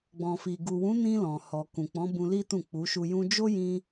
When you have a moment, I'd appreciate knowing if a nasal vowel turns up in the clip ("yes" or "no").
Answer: yes